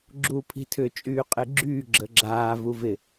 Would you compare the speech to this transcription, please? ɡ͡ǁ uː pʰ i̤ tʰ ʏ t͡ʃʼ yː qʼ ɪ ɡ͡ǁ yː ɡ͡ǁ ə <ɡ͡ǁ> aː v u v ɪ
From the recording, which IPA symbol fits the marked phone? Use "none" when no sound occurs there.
ɡ͡ǁ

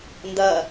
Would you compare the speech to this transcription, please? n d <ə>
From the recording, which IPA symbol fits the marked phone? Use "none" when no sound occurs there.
ɐ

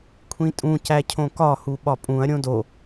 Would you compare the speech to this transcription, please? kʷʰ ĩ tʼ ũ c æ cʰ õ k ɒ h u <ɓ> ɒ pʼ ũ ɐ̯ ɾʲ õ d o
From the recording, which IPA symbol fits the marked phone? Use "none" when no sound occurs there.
ɓ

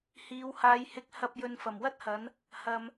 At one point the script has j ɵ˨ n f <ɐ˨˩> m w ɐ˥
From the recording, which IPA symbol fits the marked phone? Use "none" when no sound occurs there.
ɐ˨˩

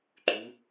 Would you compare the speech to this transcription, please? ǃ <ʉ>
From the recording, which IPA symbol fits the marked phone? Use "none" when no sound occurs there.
ʉ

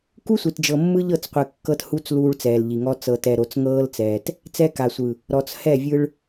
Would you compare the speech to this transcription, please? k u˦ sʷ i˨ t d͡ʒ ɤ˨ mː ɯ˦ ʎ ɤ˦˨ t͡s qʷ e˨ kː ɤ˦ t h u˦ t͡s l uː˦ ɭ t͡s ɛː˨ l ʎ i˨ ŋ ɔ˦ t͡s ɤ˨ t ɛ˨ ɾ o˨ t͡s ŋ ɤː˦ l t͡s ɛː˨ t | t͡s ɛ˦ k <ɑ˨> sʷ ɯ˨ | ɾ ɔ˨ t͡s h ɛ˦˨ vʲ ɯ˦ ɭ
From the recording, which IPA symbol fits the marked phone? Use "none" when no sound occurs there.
a˨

